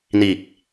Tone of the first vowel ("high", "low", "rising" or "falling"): low